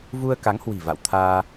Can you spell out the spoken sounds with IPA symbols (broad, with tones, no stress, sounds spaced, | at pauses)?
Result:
v u˧ ə̯ k a˨˦ ŋ h w i̤˨˩ v a̰˧˨ w t̪ʰ aː˧